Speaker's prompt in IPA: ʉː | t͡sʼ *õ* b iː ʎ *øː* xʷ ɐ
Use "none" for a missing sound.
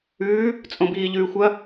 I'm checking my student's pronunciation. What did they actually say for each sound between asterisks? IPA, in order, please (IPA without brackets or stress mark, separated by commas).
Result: õ, ʉː